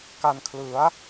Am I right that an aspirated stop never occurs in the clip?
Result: no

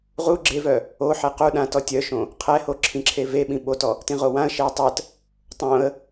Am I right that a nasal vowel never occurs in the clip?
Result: no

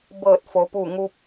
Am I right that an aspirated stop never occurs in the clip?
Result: yes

